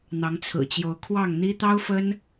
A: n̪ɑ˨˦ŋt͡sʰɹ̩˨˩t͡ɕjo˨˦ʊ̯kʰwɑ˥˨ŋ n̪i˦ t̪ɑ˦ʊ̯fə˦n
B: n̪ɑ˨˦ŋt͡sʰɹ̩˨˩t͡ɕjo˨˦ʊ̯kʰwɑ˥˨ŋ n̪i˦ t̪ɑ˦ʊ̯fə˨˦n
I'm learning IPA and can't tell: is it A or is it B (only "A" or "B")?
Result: A